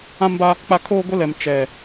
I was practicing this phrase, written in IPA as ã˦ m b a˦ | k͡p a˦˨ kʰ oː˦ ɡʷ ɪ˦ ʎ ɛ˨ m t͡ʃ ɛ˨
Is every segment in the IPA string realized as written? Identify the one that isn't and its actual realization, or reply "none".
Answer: ʎ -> l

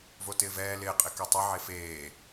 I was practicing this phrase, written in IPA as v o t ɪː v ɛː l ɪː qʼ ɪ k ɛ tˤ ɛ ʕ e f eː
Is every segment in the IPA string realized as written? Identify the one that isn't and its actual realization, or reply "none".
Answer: none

